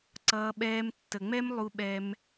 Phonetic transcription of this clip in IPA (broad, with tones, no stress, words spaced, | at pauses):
ǀʌː˧ɓɛː˧m tːə˨ŋ͡mɛ˦m lˠu˧ɓɛ˧m